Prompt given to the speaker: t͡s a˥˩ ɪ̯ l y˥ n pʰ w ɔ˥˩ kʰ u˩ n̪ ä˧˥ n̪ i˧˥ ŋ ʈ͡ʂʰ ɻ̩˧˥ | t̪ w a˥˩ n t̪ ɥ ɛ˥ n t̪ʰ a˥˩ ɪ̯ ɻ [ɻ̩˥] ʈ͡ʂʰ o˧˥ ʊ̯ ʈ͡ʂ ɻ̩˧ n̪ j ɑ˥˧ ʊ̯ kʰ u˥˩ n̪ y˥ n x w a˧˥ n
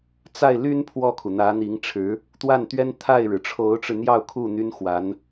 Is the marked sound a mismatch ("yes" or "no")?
yes